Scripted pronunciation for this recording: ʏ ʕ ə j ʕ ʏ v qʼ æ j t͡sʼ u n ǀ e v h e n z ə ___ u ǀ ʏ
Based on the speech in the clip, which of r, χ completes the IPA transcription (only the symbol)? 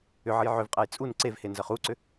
χ